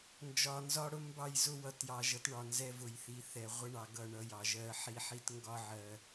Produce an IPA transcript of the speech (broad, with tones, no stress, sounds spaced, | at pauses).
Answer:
n d͡ʒ ɒ˨ n z ɒ˦ ɽ ʊ˦ m b ɑ˦˨ j z ʊ˦ w ʌ˨ t j ɑ˨ ʒ ʌ˨˦ t ɳ ɒ˨ n z ɛ˦ v ʊ˨ j θ i˨ θ ɛ˨ ʁʷ ə˦ ɳ ɑ˨ ɡ ʌ˦˨ ɳ ʌ˦ j ɑ˨ ʒ ɜ˦ ħ i˦ ħ i˦ t ŋ ɡ ɒ˦ ʕ ɜ˨